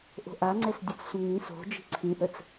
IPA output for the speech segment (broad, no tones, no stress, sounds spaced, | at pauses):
ʔ o̤ ʔ a ŋ͡ǀ ɛ s dʲ ɛ t͡s sʷ ə̃ ŋ ĩ s o̤ d͡ʒ i̤ ǀʰ ĩ ʔ ə t͡s